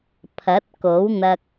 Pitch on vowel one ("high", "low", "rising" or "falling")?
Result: rising